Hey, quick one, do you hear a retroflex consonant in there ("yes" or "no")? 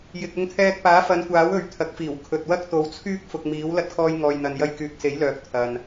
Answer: no